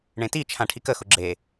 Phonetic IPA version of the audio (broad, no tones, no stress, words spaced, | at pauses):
ɳẽtit͡ʃʰã ʈʰikəxʊ ɡ͡ǁe